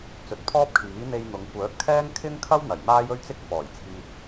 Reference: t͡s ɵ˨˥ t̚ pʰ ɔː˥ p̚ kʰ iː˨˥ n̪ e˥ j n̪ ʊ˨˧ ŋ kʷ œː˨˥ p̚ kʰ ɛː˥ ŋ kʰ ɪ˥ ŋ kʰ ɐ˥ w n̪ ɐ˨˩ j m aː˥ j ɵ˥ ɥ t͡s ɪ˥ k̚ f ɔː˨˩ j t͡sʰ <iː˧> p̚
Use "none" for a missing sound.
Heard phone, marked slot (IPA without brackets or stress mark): iː˧